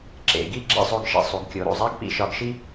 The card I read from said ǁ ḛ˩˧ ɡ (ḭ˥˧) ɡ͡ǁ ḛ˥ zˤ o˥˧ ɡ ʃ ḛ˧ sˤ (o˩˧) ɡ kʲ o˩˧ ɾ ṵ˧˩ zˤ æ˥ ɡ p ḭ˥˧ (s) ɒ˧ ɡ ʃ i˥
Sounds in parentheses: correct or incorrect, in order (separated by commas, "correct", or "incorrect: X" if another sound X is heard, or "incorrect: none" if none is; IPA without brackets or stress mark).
incorrect: i˥˧, incorrect: u˩˧, incorrect: ʃ